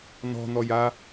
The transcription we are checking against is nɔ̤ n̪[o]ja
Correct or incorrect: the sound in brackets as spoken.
incorrect: ɔ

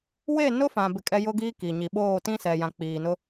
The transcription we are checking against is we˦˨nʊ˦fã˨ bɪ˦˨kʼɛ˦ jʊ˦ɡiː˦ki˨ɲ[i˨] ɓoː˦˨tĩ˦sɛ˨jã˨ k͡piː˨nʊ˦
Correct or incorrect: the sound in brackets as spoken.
correct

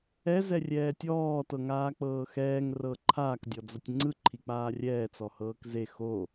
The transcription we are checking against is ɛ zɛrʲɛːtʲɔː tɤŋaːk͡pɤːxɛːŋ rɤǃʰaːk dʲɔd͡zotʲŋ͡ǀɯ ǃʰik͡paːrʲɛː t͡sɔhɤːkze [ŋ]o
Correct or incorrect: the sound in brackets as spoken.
incorrect: x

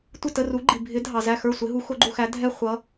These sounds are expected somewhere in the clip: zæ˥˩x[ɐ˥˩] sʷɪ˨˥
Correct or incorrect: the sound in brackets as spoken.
incorrect: ə˞˥˩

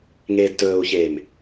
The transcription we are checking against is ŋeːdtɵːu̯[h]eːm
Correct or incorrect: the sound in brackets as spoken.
incorrect: ç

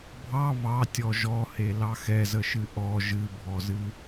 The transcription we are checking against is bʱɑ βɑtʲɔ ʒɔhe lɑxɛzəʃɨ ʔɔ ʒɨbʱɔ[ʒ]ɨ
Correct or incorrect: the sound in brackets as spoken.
incorrect: z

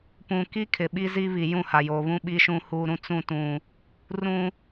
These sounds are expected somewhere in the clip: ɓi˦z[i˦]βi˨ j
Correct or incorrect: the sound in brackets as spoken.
correct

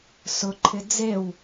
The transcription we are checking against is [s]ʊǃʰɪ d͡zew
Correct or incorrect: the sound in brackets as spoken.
correct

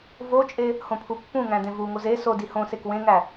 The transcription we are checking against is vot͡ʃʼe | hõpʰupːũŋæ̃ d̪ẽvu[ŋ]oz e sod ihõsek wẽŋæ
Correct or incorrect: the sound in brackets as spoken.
correct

